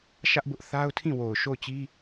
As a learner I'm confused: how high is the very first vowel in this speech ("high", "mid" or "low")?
low